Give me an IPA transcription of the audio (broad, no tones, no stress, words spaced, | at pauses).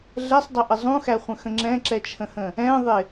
ɮɛsˤdˤɛʔə zˤũxæχʷə̃xə̃ ŋ͡ǁɛ̃ǁɛt͡ʃʰə̃hə̃ | ɛ̃ðˤɪ